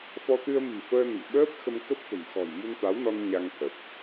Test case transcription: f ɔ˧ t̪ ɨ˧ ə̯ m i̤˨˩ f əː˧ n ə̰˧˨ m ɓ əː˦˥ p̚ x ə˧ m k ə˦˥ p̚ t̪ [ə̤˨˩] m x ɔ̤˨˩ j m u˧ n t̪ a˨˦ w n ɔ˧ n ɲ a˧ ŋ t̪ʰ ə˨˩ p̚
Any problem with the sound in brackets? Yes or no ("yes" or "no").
no